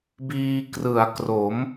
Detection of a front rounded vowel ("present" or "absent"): absent